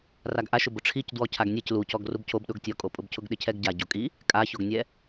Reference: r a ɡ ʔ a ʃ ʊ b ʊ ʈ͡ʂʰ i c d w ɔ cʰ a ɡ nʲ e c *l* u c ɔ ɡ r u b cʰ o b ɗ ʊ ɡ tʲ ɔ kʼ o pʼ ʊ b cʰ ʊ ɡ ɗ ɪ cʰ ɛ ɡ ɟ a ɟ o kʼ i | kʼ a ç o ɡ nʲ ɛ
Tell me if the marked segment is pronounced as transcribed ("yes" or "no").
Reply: yes